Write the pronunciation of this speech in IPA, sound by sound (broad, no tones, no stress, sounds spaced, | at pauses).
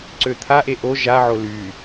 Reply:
ǀ ø t̪ʰ a ʔ e ʔ o ʒ a ʕ o l y